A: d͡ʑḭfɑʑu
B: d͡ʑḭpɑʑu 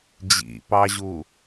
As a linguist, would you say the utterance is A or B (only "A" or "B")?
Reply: B